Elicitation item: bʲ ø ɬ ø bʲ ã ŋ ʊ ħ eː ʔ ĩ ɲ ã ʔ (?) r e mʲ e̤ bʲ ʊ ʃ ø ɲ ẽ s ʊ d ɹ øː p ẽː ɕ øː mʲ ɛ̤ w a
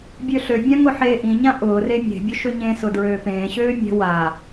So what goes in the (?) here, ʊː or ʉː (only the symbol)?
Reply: ʊː